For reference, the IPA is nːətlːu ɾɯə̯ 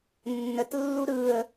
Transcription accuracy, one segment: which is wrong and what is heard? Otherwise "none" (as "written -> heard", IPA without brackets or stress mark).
none